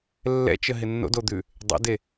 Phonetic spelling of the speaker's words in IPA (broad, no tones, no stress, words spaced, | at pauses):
lːɛ̰t͡ʃəɦɪ nːo̰dod̪ʉ | dˤɛ̰de